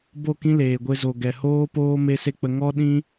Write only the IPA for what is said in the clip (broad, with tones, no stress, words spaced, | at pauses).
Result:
bo˦˨kĩ˦ leː˨ɡʷe˧zo˨ ɡɛ˨hoː˦poː˦ me˦se˦k͡pə˧ ŋɔ˦ ɗĩ˦